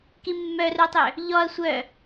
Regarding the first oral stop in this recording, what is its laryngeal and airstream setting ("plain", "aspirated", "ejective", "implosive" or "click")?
plain